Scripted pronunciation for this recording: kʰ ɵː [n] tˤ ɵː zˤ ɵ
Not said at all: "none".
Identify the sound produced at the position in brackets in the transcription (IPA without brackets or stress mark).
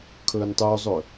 n